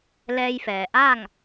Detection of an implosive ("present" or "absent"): absent